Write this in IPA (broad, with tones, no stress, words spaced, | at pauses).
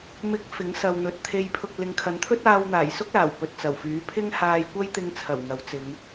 mɪ˨˥k̚ fɪ˨˥ŋsɐ˨wn̪ɵ˨t̚ t̪ʰe˨jpʰʊ˨k̚ lɪ˨˧ŋkʰɐ˨˥n t̪ʰɵ˥t̚aː˧wn̪aː˨˩j sʊ˥k̚laː˨˩w pɵ˨t̚t͡sɐ˨˩wfyː˨˥ pʰɪ˥ŋ haː˧jkʷɐ˥j t̪ɪ˧ŋ t͡sʰɐ˨˩w ŋɐ˨˥wt͡sɪ˨˧ŋ